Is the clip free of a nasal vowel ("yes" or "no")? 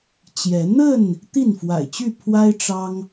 yes